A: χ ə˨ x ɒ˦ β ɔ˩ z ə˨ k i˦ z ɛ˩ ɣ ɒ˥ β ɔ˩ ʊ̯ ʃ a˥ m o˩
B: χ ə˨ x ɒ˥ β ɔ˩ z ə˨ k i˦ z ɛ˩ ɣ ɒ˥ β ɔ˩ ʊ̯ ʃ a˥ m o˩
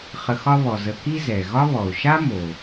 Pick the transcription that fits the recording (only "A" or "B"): A